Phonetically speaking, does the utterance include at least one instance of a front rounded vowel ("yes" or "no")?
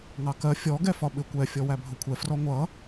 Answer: no